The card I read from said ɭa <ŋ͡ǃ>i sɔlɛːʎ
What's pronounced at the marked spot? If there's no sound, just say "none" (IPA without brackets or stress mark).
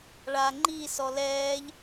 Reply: ŋ͡ǃ